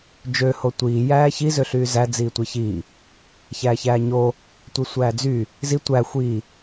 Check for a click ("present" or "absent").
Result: absent